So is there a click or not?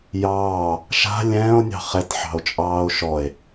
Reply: no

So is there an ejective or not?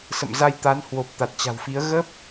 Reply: no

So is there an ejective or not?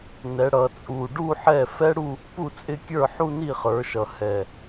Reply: yes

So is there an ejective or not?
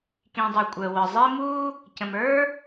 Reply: yes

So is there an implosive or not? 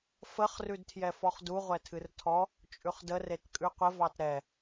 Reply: no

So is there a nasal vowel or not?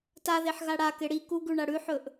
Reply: no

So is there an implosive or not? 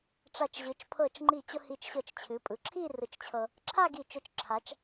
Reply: no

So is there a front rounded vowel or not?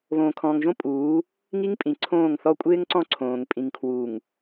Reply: no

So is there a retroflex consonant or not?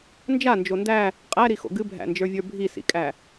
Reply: no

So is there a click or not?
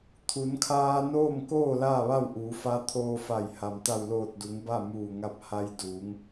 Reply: no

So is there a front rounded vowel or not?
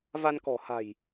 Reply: no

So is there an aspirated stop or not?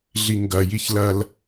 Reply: no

